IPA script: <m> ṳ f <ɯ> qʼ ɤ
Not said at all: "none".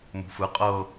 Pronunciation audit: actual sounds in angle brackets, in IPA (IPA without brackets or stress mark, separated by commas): m, ɯ